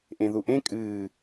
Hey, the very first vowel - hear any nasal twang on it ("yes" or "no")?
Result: yes